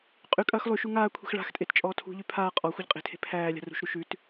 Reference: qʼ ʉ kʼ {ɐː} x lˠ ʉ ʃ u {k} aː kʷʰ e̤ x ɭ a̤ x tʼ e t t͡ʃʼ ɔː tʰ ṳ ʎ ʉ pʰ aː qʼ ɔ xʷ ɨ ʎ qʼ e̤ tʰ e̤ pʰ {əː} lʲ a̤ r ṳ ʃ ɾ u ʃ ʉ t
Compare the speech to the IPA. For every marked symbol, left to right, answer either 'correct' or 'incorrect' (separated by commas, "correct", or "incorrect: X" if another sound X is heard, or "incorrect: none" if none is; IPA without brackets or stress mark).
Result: correct, incorrect: ŋ, incorrect: æː